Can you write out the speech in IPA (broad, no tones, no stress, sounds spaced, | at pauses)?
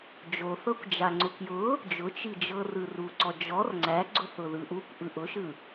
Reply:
d͡ʒ o θ ɤ kʷ d͡ʒ a ŋ͡ǀ ʊ k j ʊ | d͡ʒ ʊ t͡ʃ i d͡ʒ ɤ r ɯ r u ǀ ɔ d͡ʒ ɔ r ŋ͡ǀ æ ɡ͡ǀ ʊ θ ʊ ð ɯ ʔ u kʷ ʔ ɯ ʔ ʊ ʃ ɯ